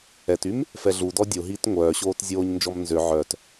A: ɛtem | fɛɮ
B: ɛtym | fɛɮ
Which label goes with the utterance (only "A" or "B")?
B